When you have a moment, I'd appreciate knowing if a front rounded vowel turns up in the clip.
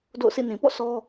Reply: no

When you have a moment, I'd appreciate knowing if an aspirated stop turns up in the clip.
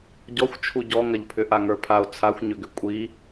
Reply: yes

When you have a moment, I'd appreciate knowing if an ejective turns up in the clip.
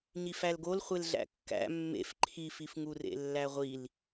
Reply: no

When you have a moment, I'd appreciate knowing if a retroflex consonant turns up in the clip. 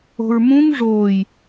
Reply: yes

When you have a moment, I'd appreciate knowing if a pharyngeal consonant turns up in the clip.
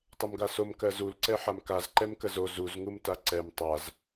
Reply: yes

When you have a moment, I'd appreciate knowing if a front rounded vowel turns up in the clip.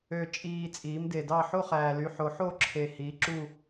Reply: yes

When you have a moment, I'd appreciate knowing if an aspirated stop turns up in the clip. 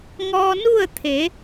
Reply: yes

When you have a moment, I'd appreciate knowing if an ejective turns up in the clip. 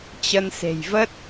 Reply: no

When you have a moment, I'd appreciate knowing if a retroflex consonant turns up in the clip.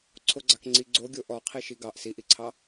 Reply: no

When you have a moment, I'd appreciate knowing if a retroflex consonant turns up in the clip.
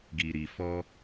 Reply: no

